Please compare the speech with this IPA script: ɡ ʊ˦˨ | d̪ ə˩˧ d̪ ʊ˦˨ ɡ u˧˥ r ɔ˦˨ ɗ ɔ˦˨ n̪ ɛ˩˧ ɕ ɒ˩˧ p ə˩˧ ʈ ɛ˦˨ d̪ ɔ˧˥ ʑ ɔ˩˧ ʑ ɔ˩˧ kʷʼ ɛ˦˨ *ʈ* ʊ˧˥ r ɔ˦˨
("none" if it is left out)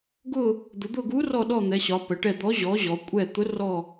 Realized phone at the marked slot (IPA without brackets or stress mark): t̪